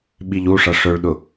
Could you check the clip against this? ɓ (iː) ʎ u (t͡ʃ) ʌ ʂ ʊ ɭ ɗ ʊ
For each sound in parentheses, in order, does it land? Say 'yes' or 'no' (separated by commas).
no, no